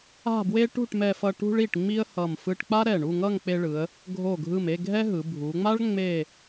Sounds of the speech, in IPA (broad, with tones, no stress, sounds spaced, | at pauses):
a̤˥˧ b w e˥ ʈ ṳ˥˧ ʈ m ɛ˧ f ʌ˧ ʈ ṳ˧ ɭ i˧˩ ʈ ŋ͡m i˥ ə̯ h ʌ˧˩ m f ɯ˧ ʈ k͡p a˥ ɾ ɛ˧˩ ɳ u˥˧ ŋ ʌ˥˧ ŋ k͡p e˧ ɭ ɯ˩˧ ə̯ | ɡʱ o˧˩ ɡʱ ɯ˧˩ m e˥˧ ɡʱ ɛ˥ ɦ ɯ˩˧ bʱ u˩˧ ŋ͡m a˥ ɭ ŋ͡m e˥˧